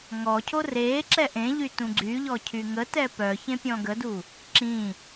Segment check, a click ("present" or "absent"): present